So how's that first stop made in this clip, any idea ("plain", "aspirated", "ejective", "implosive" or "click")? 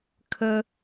aspirated